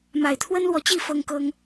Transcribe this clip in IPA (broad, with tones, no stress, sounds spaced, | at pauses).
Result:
m a˨˩ ɪ̯ t̪ʰ w ə˦ n l w ɔ˨ t͡ɕ i˥˨ f ɤ˦ ŋ k ɤ˦ ŋ